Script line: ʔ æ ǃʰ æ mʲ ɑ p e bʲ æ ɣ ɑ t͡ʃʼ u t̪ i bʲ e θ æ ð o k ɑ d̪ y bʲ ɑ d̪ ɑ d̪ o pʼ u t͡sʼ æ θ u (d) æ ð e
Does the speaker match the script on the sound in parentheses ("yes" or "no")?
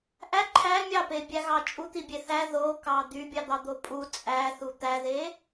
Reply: no